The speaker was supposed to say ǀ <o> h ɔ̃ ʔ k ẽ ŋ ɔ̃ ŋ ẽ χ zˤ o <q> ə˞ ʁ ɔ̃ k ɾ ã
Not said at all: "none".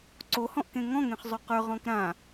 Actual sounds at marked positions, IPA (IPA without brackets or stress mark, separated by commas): o, q